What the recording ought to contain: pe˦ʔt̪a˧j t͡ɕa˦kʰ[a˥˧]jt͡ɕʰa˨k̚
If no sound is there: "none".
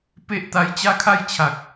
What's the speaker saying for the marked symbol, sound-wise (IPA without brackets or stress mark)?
a˥˧